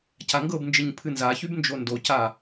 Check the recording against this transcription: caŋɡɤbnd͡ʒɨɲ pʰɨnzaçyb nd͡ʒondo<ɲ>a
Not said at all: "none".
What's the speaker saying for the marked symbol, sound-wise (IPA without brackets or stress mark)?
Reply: c